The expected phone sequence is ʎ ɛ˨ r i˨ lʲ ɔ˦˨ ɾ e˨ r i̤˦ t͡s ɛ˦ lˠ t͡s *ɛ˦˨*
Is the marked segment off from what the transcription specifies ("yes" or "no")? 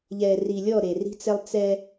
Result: yes